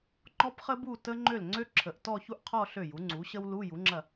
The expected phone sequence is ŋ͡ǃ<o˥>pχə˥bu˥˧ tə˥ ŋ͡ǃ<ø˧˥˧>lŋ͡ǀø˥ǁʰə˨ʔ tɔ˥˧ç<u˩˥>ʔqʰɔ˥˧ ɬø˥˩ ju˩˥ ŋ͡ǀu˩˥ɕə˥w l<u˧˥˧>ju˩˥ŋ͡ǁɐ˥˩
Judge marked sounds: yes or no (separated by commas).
no, no, no, yes